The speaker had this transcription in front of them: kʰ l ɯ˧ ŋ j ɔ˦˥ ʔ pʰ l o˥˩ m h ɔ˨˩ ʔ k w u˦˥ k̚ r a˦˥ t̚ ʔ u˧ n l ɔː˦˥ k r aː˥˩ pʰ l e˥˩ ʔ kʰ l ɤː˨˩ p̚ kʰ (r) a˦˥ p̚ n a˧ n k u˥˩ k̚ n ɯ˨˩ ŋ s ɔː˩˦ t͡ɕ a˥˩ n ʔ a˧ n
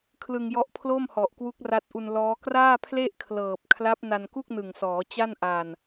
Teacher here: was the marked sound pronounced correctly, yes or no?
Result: no